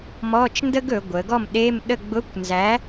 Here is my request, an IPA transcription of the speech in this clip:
m ɔ˧˥˧ t͡ʃ n d ə˥ ɡ ɵ˩˧ ɡʷ ə˩˧ ɡ ɔ˥˨ m ɗ e˧˥˧ m ɗ ə˥˨ ɡ͡b ʊ˧˥˧ kʷ n z æ˨˥

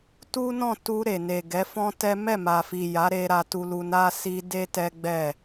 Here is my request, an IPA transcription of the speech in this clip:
t u˦ n ɔ̃˦˨ t u˧ ɾ e˨ n e˨ ɡ ɛ˨˦ f ɔ̃˦ t ɛ˦ m ɛ˦˨ m a˨ f i˨ j a˨˦ ɾ e˧ ɾ a˧ t u˧ l u˧ n a˦ s i˧ d e˦ t ɛ˦ ɡ͡b ɛ˦˨

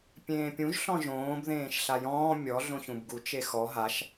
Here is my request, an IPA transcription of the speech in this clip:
pʲ ẽː pʲ ũ ʒ ɬ ɔ̃ ʒ õː b ð ẽː ʃ ɬ a j ɔ̃ː mʲ ɔ ɮ õ ç ũ b ɡ u t͡ʃ e x ɔ ɦ a ʃ

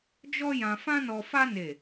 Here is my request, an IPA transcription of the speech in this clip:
d͡ʒ ɔ˦ j ã˧ f ã˦ n ɔ˧ f a˦ n e˦˨

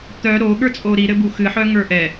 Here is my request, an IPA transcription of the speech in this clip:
t̪ œ ɾ o ɠ ə˞ t͡sʼ o ɾ i ɾ ɘ b u x ɨ ħ œ ŋ ə˞ ʔ ɛ

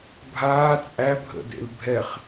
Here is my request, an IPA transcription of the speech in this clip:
bʱ aː t͡sʼ æ bʱ ə̰ d ḛ l bʱ ɛ χ

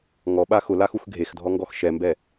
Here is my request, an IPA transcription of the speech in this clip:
ŋ ɔ ɓ a x ʊ l a x u x ɡʱ e x dʱ ɔ ŋ ɡ ɔ x ʃ ɛ m b ɛ

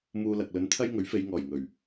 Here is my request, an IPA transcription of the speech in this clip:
m uː˧ l ɐ˨ k̚ l ɵ˨˥ n t̪ʰ ɐ˥ j ŋ ɵ˨˥ ɥ f e˨˧ j ŋ ɔː˨˩ j ŋ ɵ˨˩ ɥ

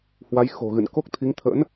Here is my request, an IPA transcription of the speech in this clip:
h w a˨˦ j x o̤˨˩ ɣ ɨ̰˧˨ n k o˦˥ k̚ t̪ʰ i˨˦ ŋ t̪ʰ ə̰˧˥ n

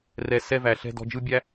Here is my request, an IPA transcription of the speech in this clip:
r ɛ˧ s ɛ˧ v æ˨ ɬ ɛ̤˧ d ɔ̤˧ d͡ʒ ɯ˦ bʲ æ˦

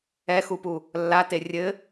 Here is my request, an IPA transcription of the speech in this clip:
ɛ x u p u | lː a t e rʲ ɘ

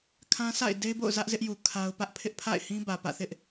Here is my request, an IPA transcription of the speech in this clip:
kʰ ã˦ sʰ a̰˦˨ ɪ̯ d e˦ b o̰˦˨ ʊ̯ z ä˦ ʔ z ɪ˦ ʔ j u˨ kʰ a˦ ʊ̯ p ä˦ ʔ pʰ ɪ˦ ʔ pʰ a̰˦˨ ɪ̯ h ĩ˦ b ä˨ p ä̰˦˨ θ ɪ˦ ʔ

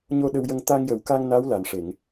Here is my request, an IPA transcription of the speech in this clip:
ɲ o˧ ɗ ə˧ w j ə˧ ŋ t̪ a˧ ŋ j ə˨˩ w k a˧ ŋ n a˧˥ w l a˨˩ n ʂ e˨˩˨ ŋ

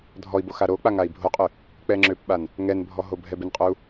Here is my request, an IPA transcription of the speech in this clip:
dʱ ɔ i̯ b o x a ɾ o k͡p a ŋ a i̯ bʱ o qʼ ø | k͡p ɛ ŋ͡ǁ ø p ɓ a n | ŋ ɛ n bʱ ɔ ɦ o bʱ ɛ b ɪ n qʼ o u̯

